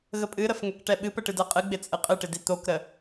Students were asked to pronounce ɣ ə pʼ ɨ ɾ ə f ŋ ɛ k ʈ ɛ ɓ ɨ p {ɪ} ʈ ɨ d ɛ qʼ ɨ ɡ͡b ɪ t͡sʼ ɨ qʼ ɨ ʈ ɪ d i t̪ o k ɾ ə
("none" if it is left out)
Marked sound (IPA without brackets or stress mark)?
ə